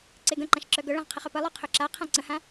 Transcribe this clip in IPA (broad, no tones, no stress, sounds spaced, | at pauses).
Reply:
ǀ e ɡ ə̃ ǃ ã ʃ ǁ œ ɡ œ ɭ ã ʁ qʰ ə χ œ p ə lˠ œ qʰ œ ǁ a qʰ ã ǀ ə̃ h ã